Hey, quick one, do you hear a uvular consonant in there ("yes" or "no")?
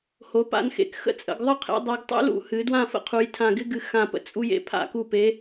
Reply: yes